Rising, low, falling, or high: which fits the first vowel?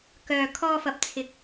low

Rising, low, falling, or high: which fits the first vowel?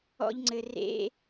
high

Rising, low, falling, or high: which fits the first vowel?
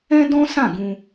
high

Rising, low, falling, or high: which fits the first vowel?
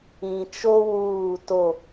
low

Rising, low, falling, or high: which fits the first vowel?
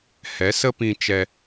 rising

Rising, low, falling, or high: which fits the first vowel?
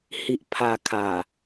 low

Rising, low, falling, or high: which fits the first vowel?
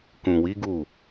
low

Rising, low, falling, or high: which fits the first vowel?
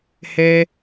high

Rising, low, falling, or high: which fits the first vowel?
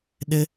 high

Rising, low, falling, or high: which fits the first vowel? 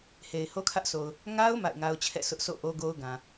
low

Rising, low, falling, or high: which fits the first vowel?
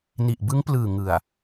low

